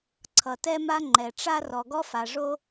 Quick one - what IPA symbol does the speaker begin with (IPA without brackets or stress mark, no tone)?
ǀʰ